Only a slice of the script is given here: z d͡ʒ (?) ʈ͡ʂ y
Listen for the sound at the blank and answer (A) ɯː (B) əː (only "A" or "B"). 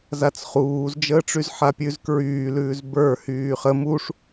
B